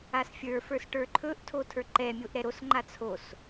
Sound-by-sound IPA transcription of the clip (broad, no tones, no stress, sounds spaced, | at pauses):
a s fʲ ə˞ f ə˞ s ʈ ə˞ ǃʰ ɵ ʔ tʰ o tʰ ə˞ ǃ ɛ mʲ o ʔ ɾ ɛ ɾ o s ŋ͡ǃ a t͡sʰ o s